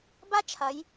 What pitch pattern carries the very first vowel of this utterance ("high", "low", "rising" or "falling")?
high